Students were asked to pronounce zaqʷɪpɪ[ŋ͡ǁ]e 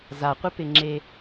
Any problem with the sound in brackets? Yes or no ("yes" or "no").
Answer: no